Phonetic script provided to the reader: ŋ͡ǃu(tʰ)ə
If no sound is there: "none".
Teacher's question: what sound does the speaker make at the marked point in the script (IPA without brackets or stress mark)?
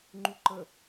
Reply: ǃ